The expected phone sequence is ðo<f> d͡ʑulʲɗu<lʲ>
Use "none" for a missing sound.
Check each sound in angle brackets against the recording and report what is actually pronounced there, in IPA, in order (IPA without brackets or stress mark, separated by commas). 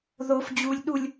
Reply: f, lʲ